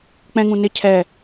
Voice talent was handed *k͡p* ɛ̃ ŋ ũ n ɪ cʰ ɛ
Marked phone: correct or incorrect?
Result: correct